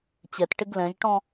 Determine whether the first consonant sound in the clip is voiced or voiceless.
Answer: voiceless